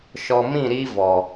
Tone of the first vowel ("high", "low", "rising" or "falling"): low